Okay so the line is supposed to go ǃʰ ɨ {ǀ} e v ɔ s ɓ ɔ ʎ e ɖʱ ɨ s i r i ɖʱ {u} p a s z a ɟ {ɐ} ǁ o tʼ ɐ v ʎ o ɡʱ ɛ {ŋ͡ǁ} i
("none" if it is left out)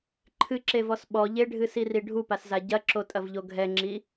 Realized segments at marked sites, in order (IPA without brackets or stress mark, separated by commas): ǁ, u, ɐ, ŋ͡ǁ